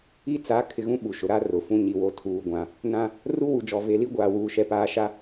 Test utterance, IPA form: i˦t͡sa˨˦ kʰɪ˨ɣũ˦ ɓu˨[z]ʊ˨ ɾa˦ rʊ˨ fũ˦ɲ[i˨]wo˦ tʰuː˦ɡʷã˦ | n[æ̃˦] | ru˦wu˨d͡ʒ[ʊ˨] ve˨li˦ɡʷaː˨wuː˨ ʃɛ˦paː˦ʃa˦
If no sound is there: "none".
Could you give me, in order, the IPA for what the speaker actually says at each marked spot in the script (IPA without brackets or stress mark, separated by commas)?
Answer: ʃ, i˨, ã˦, ɔ˨